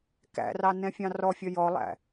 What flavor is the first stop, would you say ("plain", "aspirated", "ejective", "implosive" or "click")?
plain